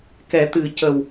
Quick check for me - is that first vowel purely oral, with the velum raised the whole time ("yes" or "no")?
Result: yes